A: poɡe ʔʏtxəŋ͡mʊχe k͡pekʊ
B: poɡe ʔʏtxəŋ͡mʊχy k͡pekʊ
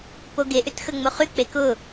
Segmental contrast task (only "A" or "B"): B